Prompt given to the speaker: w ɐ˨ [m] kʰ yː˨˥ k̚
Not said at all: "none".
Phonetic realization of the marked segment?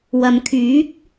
m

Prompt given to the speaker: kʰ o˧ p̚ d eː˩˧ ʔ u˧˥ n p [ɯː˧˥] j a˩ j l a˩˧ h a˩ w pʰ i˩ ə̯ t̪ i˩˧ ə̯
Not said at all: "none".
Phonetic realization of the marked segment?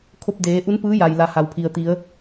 ɯː˧˥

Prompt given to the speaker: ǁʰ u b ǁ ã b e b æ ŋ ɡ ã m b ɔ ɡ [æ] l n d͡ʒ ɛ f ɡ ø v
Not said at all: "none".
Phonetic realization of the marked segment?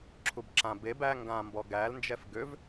æ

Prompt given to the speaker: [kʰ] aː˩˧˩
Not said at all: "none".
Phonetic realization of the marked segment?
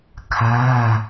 kʰ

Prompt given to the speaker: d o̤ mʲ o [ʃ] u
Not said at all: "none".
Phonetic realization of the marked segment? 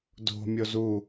z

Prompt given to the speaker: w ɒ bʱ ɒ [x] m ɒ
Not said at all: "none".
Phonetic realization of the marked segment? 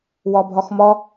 x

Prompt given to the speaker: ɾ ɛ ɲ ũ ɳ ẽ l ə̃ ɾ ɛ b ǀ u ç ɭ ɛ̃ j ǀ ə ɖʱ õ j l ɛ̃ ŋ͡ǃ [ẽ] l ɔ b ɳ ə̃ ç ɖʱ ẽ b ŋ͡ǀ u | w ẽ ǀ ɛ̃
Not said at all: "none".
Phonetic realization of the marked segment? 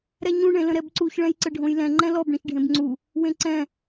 ɛ̃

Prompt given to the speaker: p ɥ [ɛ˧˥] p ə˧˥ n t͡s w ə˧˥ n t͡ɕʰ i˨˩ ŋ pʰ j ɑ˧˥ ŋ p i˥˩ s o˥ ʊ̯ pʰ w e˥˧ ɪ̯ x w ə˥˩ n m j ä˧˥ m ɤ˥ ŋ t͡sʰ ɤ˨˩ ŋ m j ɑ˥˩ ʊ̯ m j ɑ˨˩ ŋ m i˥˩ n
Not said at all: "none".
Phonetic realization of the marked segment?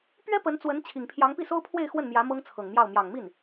ɛ˥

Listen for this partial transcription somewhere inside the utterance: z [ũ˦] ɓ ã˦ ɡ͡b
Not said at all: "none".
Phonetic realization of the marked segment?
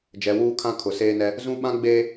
ũ˦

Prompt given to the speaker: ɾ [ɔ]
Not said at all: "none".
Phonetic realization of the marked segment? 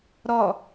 ɔ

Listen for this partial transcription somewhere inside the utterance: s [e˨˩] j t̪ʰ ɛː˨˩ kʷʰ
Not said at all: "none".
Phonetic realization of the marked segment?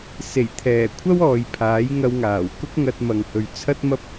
e˨˩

